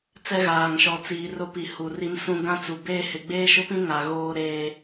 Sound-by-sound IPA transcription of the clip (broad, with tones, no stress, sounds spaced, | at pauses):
t͡s ɛ˦ ɣ aː˨ ŋ ʃ ɔ˨ t͡s iː˨ r ʊ˦ p i˨ h u˨ r i˦ m s ũ˦ ɡ ã˦ t͡s u˨ b eː˦ h ɪ˨ ɡ͡b eː˦ ʃ ʊ˦ p ĩ˦ ŋ a˨ ɣ oː˦ ɾ eː˦